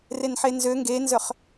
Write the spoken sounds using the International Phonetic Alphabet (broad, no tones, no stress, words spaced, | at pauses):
renħenzø ŋɡenzœχ